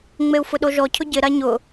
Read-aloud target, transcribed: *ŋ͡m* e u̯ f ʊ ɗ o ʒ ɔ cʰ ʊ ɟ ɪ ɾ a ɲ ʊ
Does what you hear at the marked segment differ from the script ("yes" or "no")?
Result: no